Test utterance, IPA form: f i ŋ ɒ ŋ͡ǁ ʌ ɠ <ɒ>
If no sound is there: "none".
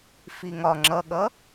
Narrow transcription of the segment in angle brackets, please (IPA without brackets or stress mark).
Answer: ʌ